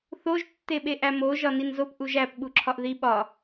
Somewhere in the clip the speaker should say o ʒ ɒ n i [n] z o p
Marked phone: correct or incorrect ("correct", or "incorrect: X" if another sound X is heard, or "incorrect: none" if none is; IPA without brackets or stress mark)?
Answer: correct